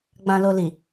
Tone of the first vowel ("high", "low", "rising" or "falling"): low